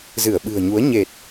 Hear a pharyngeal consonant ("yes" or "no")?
no